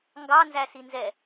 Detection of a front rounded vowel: absent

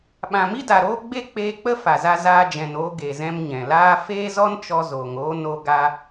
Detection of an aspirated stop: absent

